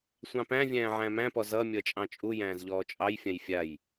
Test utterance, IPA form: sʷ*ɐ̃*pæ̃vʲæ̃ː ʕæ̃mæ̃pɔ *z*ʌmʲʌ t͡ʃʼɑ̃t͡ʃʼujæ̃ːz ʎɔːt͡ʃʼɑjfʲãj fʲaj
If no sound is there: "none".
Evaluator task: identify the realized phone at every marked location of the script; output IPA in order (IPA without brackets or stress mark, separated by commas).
ɑ̃, z